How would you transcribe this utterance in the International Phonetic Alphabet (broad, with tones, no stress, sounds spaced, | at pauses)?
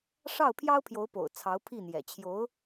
ʂ ɑ˥˩ ʊ̯ pʰ j ɑ˥ ʊ̯ pʰ j o˧˥ ʊ̯ p o̰˨˩ ʊ̯ t͡sʰ ɑ˧˥ ʊ̯ pʰ i˥˩ n̪ j ɛ̰˨˩ t͡ɕʰ j o˧˥ ʊ̯